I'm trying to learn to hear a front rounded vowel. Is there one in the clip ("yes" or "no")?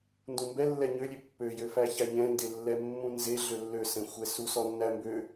yes